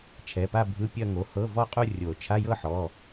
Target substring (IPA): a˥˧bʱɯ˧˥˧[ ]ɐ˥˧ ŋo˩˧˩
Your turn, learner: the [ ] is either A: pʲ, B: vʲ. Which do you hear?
A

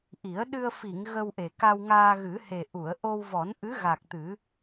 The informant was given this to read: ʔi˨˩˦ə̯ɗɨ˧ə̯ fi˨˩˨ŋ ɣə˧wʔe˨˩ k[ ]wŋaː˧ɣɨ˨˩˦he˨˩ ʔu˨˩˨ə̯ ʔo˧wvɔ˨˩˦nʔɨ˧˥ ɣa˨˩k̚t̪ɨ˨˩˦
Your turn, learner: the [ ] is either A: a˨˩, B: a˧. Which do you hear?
B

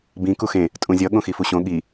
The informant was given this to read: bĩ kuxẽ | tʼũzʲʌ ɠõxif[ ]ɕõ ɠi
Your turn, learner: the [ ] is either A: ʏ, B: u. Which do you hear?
B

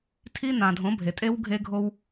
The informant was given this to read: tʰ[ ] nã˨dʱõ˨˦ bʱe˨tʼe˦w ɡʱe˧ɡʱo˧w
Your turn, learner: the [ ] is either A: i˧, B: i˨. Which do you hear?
A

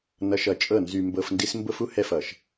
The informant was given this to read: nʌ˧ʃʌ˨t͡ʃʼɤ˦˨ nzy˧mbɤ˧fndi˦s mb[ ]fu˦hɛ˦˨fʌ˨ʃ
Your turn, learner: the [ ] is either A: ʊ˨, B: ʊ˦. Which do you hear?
B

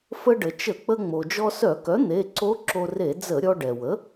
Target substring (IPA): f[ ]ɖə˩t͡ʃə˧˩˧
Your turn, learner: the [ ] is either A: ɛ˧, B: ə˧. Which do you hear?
B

